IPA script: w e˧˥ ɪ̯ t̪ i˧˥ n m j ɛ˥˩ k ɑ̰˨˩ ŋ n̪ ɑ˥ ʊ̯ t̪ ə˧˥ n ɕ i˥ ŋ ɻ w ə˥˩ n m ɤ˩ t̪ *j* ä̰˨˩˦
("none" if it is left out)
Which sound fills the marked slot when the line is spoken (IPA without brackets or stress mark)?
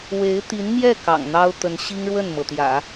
j